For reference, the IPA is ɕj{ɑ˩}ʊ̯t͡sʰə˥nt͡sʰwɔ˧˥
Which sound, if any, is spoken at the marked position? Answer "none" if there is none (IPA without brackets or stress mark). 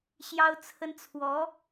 ɑ˥